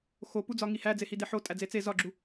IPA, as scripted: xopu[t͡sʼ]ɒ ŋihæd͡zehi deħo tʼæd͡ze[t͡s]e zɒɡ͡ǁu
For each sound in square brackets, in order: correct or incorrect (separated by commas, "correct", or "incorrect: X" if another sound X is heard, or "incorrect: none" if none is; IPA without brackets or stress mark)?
incorrect: d͡z, correct